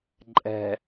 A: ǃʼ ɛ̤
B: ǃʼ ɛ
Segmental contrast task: A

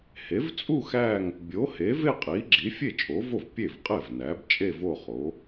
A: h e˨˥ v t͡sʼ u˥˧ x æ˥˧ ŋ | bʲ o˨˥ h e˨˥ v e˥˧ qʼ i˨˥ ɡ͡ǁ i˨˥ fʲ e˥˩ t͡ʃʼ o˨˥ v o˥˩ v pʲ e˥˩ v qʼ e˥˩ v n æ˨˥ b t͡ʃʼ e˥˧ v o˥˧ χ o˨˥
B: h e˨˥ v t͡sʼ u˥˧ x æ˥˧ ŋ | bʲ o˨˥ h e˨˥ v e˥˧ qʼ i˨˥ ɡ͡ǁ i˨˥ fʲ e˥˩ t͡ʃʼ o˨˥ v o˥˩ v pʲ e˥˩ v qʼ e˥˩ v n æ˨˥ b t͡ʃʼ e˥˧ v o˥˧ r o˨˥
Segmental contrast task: A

